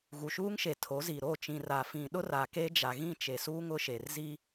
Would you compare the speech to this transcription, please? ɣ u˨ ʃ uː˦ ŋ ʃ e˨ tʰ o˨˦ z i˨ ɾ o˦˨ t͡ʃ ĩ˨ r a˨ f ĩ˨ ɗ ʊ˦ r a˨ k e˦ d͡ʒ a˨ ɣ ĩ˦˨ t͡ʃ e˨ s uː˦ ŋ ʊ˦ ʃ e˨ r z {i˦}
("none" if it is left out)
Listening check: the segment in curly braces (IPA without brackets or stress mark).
i˦